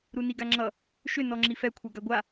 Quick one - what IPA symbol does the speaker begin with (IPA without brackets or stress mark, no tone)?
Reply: ɾ